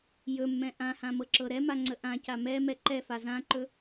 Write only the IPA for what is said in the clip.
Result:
j ɵ mː ɛ̃ ʔ ã h ã m ɤ ǁ ɤ ɾ ɛ m a ŋ͡ǀ ə ʔ ã c a m ɛ m ɛ ǃ ɛ f a z ã ǃ ɵ

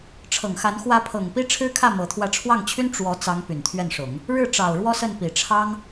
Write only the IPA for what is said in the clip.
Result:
ʈ͡ʂʰ ɤ˨˩ ŋ x a˧˥ n x w ä˧˥ pʰ ɤ˨˩ ŋ p i˥ ʈ͡ʂʰ ɻ̩˥ kʰ ä˥˩ m ɤ˧˥ t̪ʰ w ä˥˧ ʈ͡ʂʰ w ɑ˥˩ ŋ t͡ɕʰ y˥ n ʈ͡ʂ w ɔ˧˥ t͡s ɑ˧˥ ŋ p y˨˩ n t̪ʰ ɥ ɛ˥˩ n ʂ ʊ˨˩˦ ŋ | ɻ ɻ̩˥˩ ʈ͡ʂ ɑ˨˩ ʊ̯ ɻ w ɔ˥ s ə˥˩ n p i˨˩ ʈ͡ʂʰ ɑ˥ ŋ

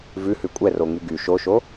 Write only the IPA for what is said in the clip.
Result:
v ʉ h ʉ kʷʼ ɛ r o ŋ y ɡ y ʃ o ʃ o

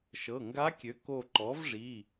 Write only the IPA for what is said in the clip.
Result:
ʃ ɤ˩˧˩ ŋ ɡ a˧˥ kʲ ø˩˥ k o˧˩ ǃ ɔ˩˥ v ʐ i˩˧˩

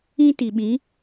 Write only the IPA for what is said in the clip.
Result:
ĩ˦ t i˨ ɓ ĩ˨˦

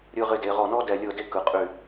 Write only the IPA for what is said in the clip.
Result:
ɾʲ ɯ˧ ʁ ɪ˧ d e˩˧ ʁ ɔ˧˩ n ɔ˥ d ɛ˧˩ lʲ ɤ˥˧ d e˥ k ɯ˩˧ qʼ y˧˩

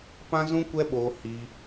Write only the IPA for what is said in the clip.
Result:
p ã˦ z ũ˦ kʷ ɛ˦ ɓ oː˧ h i˧

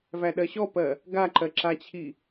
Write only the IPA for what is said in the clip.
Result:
v æ ɗ ɜ ɕ ɔ p ɜ | ɡ a ǃ ɜ ǁ a t͡ɕʰ i

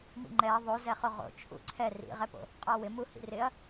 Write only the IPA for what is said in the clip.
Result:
m ḭ ŋ͡ǃ ɛ ɐ̯ ðˤ o z ɛ χ o ʁ o̰ t͡ʃʰ ṵ ǀʰ ɛ r ḭ ʁ ɛ p o̰ | qʼ ɔ w ɪ m u h ḭ r ɪ ɐ̯

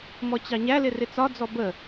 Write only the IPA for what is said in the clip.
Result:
m ɔ t͡ɕ ɑ ɲ æ l ɪ r ɪ t͡s ɒ d͡z ɔ b ə

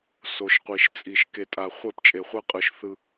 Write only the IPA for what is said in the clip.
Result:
s o˨ ʃ qʷ i˨ ʃ t͡sʼ i˨ ʃ k e˨ tʼ a˨ χʷ ɛ˦˨ p t͡ʃʼ e˨ χʷ ɛ˦ qʼ ɯ˨ ʃ θ ɯ˦

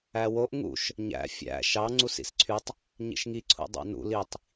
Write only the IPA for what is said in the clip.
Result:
æ w o ʔ ŋ ṵ ʃ | ɲ æ̰ fʲ æ̰ ʃ ɑ ŋ͡ǀ u s ḭ s ǀʰ y tˤ | ɲ ḭ ʃ ŋ i ǀʰ ṵ dˤ ɑ̰ n ṵ l i tˤ

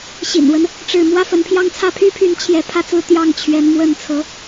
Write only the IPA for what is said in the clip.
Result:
ɕ ḭ˨˩ n w ə˦ n | ʈ͡ʂ ɻ̩˥˩ m w ä˥ f ə˧˥ n pʰ j ɑ˥ ŋ t͡sʰ ä˥˩ pʰ y˥ pʰ y˧˥ n t͡ɕʰ j ɛ˧˥ pʰ ä˥˧ t͡s ɹ̩˥˧ t̪ j ɑ˥˩ ŋ t͡ɕʰ ɥ ɛ˧˥ n m w ə˥˩ n t͡sʰ ɤ˧˥

